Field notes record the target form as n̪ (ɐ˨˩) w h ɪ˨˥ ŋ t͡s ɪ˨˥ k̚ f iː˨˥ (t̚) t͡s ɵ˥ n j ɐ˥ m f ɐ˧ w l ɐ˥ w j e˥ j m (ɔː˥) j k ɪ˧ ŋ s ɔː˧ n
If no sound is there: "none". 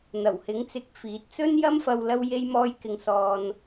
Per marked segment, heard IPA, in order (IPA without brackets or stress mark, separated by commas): ɐ˨˩, t̚, ɔː˥